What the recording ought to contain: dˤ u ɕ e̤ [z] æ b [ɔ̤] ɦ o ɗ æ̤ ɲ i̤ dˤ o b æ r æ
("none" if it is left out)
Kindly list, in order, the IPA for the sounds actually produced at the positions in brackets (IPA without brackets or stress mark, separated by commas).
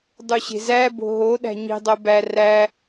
z, o̤